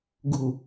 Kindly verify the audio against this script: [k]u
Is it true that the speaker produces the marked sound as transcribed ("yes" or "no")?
no